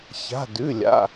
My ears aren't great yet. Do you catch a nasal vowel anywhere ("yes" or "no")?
no